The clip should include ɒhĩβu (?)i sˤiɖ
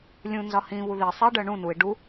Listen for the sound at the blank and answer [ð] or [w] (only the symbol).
ð